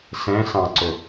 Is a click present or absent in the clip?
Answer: present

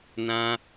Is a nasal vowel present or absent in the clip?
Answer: present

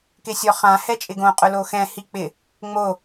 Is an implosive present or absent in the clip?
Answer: absent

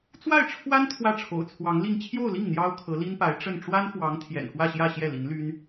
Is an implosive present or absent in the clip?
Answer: absent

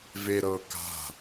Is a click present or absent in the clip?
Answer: absent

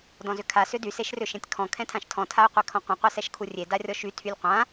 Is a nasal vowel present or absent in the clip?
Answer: present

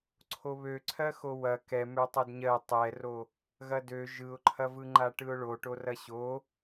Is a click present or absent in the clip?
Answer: present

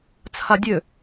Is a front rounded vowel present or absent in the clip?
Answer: present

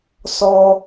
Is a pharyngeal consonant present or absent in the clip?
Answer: absent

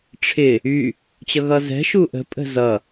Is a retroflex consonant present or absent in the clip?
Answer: present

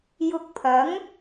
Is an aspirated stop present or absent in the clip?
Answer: present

